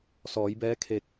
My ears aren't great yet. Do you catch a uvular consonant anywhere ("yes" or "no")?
no